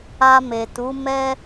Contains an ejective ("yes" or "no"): no